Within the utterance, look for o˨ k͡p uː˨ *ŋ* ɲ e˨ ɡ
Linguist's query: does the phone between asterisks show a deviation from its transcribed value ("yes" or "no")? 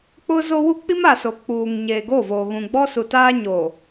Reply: no